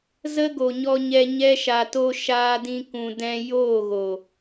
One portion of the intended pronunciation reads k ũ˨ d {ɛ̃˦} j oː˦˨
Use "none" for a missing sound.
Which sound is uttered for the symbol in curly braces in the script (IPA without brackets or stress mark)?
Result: ɛ̃˧